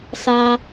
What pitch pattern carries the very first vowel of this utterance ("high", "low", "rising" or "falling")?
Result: low